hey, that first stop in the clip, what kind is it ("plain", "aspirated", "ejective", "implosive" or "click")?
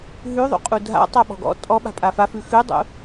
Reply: ejective